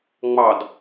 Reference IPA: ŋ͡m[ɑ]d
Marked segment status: correct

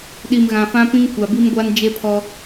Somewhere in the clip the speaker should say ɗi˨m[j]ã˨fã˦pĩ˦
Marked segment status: incorrect: ɣ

